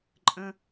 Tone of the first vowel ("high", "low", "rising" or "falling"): high